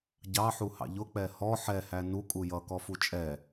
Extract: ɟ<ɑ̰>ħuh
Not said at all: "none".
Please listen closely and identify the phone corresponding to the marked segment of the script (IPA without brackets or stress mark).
ɑ